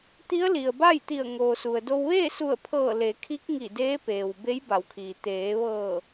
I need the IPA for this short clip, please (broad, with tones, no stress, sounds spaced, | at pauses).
t̪ i˧˥ ə̯ l i˩ ə̯ b a˥˨ j t̪ i˧˩ ə̯ ŋ oː˩ s u˩ ə̯ d o˧ w ʋ eː˥˨ s u˧˩ ə̯ pʰ ɤː˧˩ l e˩˧ kʰ i˧˥ k̚ ŋ i˧˩ d eː˧˥ p eː˩ w b e˧˥ j b a˩˧ w kʰ iː˩ t̪ eː˩˧ ʋ ɤː˧˩